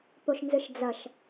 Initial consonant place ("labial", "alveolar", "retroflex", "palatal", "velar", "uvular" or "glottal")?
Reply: labial